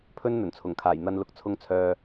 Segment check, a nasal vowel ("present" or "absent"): absent